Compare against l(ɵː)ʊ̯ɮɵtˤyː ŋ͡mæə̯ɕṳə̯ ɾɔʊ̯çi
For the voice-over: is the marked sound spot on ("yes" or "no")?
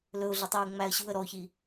no